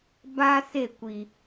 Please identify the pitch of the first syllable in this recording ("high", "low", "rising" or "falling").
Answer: high